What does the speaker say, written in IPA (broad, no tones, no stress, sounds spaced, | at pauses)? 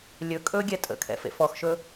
lʲ ɵ kʼ ɵ ɡʲ ɛ tʼ ə̰ kʰ ɛ̰ f ḛ f ɔ x ʃ ɵ